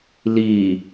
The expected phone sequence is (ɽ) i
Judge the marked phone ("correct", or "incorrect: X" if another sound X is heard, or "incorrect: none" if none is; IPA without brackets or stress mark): incorrect: l